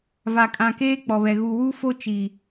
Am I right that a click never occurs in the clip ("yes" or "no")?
yes